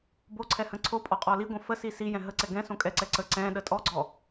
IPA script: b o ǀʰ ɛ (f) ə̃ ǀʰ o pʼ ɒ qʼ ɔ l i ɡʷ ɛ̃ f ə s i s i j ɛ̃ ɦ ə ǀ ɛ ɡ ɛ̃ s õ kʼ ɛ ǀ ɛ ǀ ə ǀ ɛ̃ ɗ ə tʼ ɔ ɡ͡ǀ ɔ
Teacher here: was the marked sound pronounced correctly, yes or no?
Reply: no